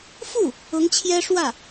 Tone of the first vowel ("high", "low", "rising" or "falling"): falling